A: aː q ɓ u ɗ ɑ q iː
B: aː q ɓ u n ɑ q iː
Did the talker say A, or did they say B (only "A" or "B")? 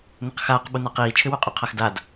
B